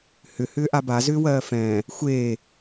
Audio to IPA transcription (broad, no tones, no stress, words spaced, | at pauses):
hʏ hʏːʔaba zʏːwɜːfɛ̃ː | xʷeː